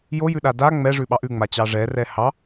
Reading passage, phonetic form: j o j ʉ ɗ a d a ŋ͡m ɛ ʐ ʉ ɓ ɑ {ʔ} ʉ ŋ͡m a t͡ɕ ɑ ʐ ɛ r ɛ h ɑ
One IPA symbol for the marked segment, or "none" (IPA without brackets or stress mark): ʔ